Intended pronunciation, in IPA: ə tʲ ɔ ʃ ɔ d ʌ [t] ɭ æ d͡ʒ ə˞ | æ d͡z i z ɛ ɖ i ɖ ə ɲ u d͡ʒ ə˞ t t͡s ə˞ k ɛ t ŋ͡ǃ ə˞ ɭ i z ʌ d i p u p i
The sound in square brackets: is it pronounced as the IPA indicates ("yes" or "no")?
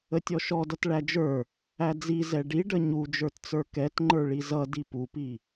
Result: yes